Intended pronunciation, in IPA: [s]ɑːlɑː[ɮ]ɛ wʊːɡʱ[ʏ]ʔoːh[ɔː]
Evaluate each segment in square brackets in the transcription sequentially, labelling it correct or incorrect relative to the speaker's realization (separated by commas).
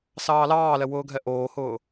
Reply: correct, incorrect, incorrect, incorrect